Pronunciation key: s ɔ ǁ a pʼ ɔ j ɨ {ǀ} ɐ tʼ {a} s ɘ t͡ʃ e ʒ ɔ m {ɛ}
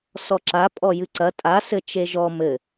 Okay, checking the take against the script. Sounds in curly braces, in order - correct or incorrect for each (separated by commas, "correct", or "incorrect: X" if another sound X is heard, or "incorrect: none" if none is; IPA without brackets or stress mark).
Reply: correct, correct, incorrect: ɘ